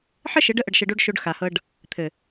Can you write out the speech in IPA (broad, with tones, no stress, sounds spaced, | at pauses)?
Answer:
ħ ə˦ ʃ ɘ˨˦ ɖ ə˦ ʔ ə˧ ɖ ʃ ə˧ ɖ o˦ ɖ ʃ o˧ ɖ x a˨ h ɤ˧ ɖ | t̪ʰ ɘ˨